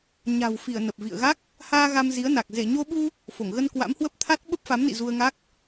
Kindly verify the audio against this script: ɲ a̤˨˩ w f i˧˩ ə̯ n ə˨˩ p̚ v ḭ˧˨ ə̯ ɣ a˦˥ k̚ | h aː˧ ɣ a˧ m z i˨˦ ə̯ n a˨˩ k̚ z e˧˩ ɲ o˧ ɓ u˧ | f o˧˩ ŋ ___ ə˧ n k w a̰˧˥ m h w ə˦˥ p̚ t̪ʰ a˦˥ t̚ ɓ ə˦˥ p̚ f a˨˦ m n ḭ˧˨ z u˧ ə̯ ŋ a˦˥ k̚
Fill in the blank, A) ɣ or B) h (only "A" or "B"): A